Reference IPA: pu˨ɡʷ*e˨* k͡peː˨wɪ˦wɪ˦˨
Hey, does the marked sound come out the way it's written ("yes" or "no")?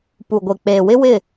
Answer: yes